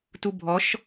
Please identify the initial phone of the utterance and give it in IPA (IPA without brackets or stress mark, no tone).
t